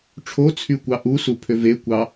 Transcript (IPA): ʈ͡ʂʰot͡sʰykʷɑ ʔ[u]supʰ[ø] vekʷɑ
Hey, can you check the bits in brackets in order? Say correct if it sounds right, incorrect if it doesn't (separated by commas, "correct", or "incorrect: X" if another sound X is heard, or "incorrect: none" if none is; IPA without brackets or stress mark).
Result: correct, correct